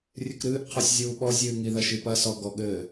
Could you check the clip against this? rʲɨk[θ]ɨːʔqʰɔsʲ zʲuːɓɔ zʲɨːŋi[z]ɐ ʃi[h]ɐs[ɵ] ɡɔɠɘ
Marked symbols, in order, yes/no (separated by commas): no, no, no, no